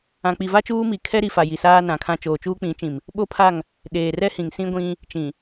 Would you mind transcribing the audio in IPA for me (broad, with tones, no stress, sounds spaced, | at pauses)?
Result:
ã˨ k͡p i˨ v a˦ t͡ʃ uː˦ m i˨ kʰ ɛ˦ ɾ i˨ f a˨ j i˨ s aː˦ n ã˨˦ kʰ ã˦ t͡ʃ oː˨ t͡ʃ uː˦ k͡p ĩ˨˦ t͡ʃ ĩ˨ m | ɓ o˦ pʰ a˦˨ ŋ | ɗ eː˨ r ɛ˦ h ĩ˨ ŋ s ĩ˦ ɡʷ ĩ˦ | t͡ʃ ĩ˨